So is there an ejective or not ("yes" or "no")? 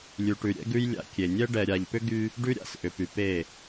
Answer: no